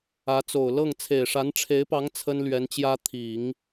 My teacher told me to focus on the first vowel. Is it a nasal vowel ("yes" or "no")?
no